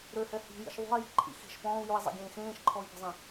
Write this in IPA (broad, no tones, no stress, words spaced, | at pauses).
ɾøhɛ hi̤jḭʃ ðˤṳi̯ji̤ǃʼḭ xi̤ʃ pɔ̃ːu̯jui̯zˤḛɡʲẽː xẽːʃǃʰɔi̯pə̤zˤĩ